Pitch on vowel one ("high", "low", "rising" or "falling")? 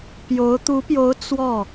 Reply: rising